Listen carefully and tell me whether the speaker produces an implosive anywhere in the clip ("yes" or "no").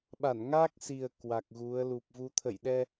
yes